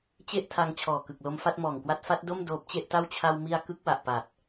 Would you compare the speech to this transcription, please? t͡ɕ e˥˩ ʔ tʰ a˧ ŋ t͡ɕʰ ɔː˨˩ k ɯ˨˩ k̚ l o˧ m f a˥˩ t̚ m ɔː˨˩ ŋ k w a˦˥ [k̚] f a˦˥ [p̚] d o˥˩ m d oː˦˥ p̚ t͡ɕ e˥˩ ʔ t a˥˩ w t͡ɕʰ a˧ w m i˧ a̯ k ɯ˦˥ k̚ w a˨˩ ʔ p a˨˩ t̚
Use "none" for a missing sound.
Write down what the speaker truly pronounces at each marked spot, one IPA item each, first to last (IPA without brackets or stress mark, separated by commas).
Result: t̚, t̚